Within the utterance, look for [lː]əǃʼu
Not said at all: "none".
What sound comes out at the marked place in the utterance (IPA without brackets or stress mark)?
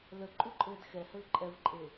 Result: l